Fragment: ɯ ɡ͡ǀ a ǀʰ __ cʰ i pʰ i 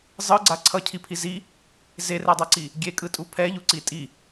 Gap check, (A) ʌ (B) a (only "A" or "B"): A